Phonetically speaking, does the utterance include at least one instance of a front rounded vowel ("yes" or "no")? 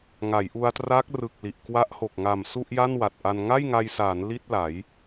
no